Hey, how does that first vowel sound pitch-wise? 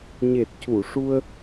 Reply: low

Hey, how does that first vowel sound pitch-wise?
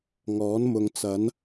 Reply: rising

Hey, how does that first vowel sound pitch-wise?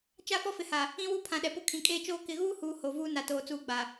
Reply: falling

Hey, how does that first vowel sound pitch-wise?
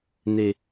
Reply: high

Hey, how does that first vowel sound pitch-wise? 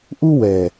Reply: high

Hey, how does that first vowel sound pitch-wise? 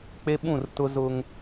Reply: high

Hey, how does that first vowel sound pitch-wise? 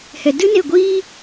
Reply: low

